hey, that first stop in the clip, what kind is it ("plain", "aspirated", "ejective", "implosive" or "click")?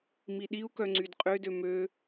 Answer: implosive